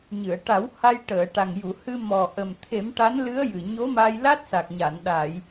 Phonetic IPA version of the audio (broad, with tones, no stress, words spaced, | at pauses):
ɲɨ˨˩˨ə̯ʈa˨˩˦w ha˧j ʈəː˨˩˨ʈa˨˩ŋju˨˩˨ hɨ˧mɔ˨˩ ʔə˨˩m t̪ʰe˨˩˦mʈa˧˥nlɨ˧˥ə̯ jɨ˨˩ɲo˧˥ma˧j la˦˥t̚sa˨˩k̚ɲa˨˩˨n ɗa˨˩˨j